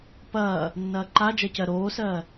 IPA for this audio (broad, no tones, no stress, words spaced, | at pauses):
pɐː | nːɐːǃad͡ʒɐ cɜɾoːsɜː